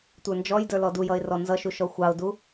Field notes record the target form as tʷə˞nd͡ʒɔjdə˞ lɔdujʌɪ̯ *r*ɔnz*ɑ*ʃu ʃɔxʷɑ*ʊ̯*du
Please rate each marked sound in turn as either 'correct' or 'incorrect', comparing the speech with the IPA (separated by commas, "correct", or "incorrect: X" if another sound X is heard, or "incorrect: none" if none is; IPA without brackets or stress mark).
correct, incorrect: ʌ, correct